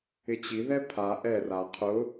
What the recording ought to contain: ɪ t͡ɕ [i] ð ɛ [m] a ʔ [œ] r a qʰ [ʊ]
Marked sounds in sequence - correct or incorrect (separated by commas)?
correct, incorrect, incorrect, correct